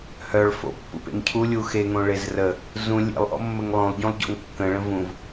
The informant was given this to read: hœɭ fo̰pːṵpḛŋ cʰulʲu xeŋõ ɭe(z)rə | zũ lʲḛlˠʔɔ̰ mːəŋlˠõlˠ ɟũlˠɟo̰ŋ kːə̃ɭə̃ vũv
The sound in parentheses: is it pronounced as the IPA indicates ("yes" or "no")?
yes